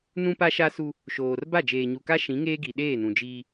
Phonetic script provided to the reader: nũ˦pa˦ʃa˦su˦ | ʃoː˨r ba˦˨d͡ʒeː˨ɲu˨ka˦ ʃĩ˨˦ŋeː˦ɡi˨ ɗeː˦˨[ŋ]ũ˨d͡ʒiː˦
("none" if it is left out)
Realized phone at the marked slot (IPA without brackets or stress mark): n